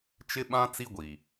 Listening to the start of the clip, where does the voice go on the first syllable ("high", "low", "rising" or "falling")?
high